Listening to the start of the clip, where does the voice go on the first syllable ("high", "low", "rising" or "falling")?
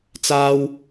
high